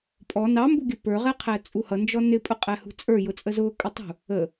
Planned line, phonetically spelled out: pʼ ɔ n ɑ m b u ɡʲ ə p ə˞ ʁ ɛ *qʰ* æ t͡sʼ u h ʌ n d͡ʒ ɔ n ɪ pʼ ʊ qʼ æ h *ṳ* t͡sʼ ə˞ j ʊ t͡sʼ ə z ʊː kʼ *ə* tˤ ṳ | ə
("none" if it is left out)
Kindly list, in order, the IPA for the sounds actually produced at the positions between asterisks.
qʰ, ṳ, ə

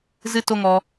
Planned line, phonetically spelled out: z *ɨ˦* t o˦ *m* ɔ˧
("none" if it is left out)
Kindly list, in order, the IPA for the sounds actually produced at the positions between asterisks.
ɨ˦, ŋ

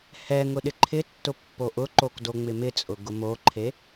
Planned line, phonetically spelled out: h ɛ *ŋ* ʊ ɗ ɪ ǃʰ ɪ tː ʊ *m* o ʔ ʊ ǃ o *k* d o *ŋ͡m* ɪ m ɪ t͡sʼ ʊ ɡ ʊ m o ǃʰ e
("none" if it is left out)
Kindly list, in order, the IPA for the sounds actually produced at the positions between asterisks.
ŋ, pː, k, ŋ͡m

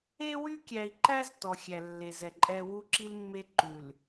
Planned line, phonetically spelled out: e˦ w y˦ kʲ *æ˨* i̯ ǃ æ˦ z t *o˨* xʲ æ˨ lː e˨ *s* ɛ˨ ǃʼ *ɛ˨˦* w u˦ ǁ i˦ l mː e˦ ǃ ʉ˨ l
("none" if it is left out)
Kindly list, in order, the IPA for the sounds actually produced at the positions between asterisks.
æ˨, ɔ˨, z, ɛ˦

